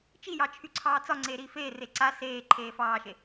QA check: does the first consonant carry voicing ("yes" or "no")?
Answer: no